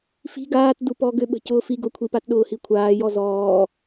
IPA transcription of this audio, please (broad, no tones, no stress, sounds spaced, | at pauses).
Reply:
f i̤ ɡ aː t d u p ɔ ɡ ʏ ɓ ə̤ c ʊː f i ɡ ʊ kʷʰ i p a t ɗ ʊː h i kʷʰ aː j ɔ z ɔː